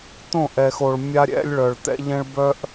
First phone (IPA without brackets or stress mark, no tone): t̪